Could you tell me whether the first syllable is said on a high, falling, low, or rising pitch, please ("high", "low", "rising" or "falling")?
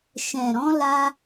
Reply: low